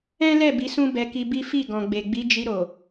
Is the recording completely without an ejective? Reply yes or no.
yes